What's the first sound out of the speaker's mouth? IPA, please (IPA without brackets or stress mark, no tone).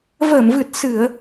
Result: v